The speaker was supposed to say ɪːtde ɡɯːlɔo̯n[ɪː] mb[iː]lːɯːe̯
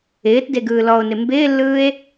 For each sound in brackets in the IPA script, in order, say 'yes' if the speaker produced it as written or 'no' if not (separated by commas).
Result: no, no